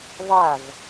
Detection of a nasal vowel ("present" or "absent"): absent